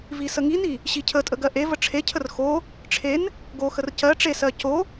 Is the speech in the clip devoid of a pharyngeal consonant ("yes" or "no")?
yes